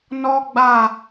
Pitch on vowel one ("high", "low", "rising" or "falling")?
high